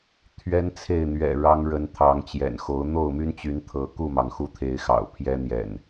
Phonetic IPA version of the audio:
t̪ʰ ɥ ɛ˦ n t͡sʰ e˥˨ ɪ̯ n̪ ɥ ɛ̰˨˩ ɻ ɑ˦ ŋ ɻ ə˨˦ n t̪ʰ ɑ˨˦ ŋ t͡ɕ j ɛ̰˨˩ n x o˨˦ ʊ̯ n̪ o˥˨ ʊ̯ m y˦ n t͡ɕ y˨˦ n t̪ʰ ɤ˨˦ k u˥˨ m ɑ˩ ŋ x u˥˨ t̪ʰ e˨˦ ɪ̯ x ɑ̰˨˩ ʊ̯ pʰ j ɛ˦ n̪ j ɛ̰˨˩ n

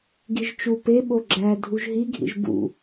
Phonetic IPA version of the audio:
ɡ i ʒ t͡ʃ u p e ɓ o ɡ͡ǁ æ dʱ u ʒ ɦ i ɡʱ ḭ ʒ b ṵ

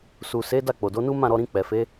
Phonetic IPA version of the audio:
s u˨ s e˨˦ d a˦˨ k͡p o˨ d o˨˦ n u˦ m ã˦˨ ɾ ɔ˧ ɾ ĩ˧ k͡p ɛ˨ f e˨˦

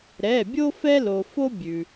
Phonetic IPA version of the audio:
ɾ ɛ˩˧˩ bʲ o˦ f ɛ˦ l o˩ f o˦ bʲ ʉ˩

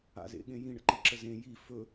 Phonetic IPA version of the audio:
a̰ z ḛ ɠ ẽ j ĩ ɳ ə̰ ǃ i ǁ ə z ẽ j i f ɵ

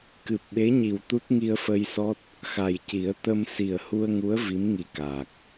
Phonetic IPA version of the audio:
k ɨ˨˩ p̚ ɓ e˧˥ ɲ i˨˩ w t̪ u˦˥ t̚ ŋ i˧ ə̯ f ə˧ j s ɔ˦˥ t̚ | x a˨˩ j c i˨˩˦ ə̯ t̪ ə˧ m s i˨˩ ə̯ h u˧ ə̯ ŋ u˧˥ ə̯ v i˧˥ m ŋ i˨˩ k aː˨˩ k̚

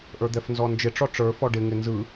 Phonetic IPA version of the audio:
ʔ ə˞ d̪ ɛ f n z ɔ n d͡ʒ ɪ ʈ͡ʂ ɔ ʈ͡ʂ ə˞ f ɔ ɖ ɪ ŋ ɪ n z ɯ

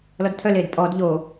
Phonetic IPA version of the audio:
l ɔ d tʰ œ l eː d pʼ ɔː d ʎ oː

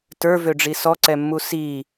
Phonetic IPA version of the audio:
t ə˞ v ø ɖ͡ʐ i s ɔ ǀ ɛ mː u s i

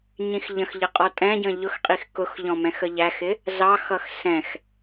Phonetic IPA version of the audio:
ɲ ĩ x ʎ ə̃ x ʎ ə qʼ ɔ tʼ ɛ̃ ɟ ə̃ ʎ ʊ x qʼ i x k ʊ x ʎ ɔ̃ m ɛ̃ x ə ʎ æ x ɪ | z ɑ x ʌ x s ɛ̃ x

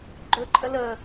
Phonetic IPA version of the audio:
ɡ͡ǃ ɵ ǃʼ ə l ə

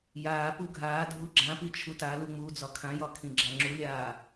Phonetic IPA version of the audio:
j aː p u ɡʱ aː dʱ u ɡ͡ǁ ã p i t͡ʃʰ u t a l u ŋ͡m uː d͡z ɒ kʰ ã j ɒ kʰ ĩ ɡ͡ǁ a ŋ͡ǁ u lʲ aː

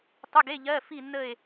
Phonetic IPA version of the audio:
tˤ ʏ˧˥˧ ɡ e˧˥˧ ʎ ɜː˧˥˧ f i˦˨ nː ə˦˨ e̯

